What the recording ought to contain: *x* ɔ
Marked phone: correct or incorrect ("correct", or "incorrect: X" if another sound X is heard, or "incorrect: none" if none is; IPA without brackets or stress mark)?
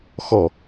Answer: correct